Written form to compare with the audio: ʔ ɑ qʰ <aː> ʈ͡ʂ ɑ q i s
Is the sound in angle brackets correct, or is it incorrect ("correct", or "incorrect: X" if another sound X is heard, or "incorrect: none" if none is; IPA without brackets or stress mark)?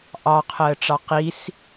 incorrect: əː